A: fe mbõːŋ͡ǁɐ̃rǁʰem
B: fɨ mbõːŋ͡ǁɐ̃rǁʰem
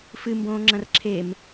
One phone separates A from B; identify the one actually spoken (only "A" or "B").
B